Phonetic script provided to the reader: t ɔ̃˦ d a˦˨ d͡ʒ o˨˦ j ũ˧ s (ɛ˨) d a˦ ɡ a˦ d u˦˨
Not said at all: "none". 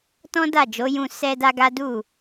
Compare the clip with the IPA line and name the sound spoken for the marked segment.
ɛ˦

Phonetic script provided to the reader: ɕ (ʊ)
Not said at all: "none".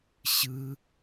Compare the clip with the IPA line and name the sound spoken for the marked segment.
ɯ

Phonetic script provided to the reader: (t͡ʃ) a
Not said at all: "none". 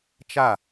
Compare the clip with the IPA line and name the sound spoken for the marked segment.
t͡ʃ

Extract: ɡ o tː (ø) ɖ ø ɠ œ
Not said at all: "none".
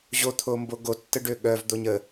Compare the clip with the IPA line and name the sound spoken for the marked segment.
ə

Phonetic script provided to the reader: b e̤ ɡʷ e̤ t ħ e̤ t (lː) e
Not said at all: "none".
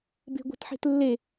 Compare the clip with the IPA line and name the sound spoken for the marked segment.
lː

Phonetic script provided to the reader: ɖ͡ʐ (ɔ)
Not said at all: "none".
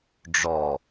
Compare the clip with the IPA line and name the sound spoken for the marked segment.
ɔ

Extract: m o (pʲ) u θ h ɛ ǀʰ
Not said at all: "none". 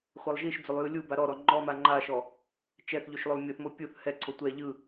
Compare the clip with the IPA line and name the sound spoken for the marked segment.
pʲ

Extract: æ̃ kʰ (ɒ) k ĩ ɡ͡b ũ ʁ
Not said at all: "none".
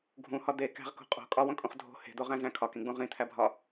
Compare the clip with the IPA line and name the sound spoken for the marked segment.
ɒ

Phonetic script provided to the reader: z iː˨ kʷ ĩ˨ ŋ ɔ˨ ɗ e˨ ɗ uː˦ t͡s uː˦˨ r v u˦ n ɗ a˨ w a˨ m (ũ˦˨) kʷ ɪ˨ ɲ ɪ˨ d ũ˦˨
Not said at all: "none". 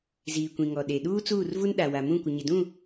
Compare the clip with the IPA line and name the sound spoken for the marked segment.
ũ˦˨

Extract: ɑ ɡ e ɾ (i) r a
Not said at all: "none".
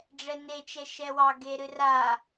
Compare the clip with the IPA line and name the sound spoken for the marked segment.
ɨ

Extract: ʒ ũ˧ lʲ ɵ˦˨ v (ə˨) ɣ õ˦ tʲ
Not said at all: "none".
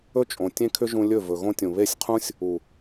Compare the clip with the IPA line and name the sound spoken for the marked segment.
ɵ˨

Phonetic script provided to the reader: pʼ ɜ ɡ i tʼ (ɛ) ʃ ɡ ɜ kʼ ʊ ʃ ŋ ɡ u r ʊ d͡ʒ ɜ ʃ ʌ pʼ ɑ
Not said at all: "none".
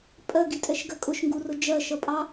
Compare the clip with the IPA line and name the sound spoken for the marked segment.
ɛ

